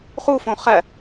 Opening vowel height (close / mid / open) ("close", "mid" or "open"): close